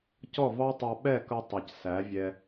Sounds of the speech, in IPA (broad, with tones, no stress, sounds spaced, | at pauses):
c ɔ˦˨ v ɑ˦ tˤ ɑ˧ ɓ ɛ˦˨ k ʌ˧ tˤ ʌ˨ c s æ˨˦ vʲ ɛ˧